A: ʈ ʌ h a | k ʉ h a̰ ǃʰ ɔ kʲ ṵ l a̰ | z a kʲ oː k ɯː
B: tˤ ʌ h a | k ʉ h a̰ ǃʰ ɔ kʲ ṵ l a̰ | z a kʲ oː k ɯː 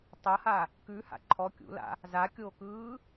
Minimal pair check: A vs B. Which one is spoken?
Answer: B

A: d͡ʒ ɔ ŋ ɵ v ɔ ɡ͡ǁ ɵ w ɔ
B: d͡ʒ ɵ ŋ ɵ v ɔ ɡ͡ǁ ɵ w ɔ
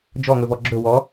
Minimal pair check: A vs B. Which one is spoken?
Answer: A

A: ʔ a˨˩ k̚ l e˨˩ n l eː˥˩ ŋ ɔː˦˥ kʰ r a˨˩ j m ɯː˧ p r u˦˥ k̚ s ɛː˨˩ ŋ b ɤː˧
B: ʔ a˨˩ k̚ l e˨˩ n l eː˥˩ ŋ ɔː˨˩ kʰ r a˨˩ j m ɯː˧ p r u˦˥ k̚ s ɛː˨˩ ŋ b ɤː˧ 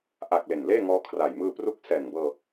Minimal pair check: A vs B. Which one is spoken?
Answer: A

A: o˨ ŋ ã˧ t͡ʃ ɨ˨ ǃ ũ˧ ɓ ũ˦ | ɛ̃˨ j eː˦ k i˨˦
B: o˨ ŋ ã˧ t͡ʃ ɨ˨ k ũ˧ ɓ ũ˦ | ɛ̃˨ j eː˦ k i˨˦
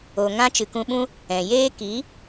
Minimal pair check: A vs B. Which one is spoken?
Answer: B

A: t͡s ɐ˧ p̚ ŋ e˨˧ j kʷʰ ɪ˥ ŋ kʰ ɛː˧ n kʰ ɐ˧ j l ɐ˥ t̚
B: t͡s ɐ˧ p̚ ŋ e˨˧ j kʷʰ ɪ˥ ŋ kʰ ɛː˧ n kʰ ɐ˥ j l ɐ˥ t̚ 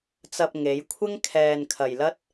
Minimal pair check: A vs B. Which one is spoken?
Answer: A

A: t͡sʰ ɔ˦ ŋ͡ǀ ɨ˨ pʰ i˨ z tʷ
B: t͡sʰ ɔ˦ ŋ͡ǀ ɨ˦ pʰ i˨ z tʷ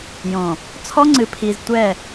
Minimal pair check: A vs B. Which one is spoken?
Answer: A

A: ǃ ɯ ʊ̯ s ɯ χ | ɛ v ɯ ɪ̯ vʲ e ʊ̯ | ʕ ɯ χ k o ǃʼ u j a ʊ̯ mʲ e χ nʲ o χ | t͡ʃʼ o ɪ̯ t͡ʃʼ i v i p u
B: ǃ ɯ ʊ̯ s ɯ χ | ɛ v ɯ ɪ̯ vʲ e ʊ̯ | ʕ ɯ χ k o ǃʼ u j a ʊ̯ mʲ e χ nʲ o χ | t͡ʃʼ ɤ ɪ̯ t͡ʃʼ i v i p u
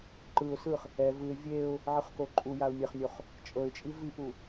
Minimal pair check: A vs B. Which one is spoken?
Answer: B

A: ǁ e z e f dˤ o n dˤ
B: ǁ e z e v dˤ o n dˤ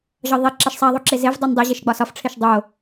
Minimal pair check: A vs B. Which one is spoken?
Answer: B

